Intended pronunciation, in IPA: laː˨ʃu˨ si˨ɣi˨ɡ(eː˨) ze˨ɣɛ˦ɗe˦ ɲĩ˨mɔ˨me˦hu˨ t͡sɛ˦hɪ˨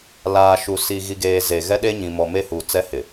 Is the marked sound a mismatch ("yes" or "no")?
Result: no